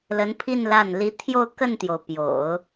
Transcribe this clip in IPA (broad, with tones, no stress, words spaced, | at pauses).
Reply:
lə˧˥npʰi˥˧n la˥˩n li˧˥t̪ʰjo˥˧ʊ̯ kə˥˩nt̪jo˩ʊ̯ pjo̰˨˩˦ʊ̯